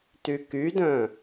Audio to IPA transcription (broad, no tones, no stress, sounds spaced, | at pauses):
t y k y d œ̃